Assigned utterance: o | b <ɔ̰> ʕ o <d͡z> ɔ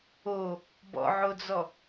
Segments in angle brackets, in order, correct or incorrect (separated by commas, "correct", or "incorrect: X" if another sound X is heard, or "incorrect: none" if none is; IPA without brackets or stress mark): correct, correct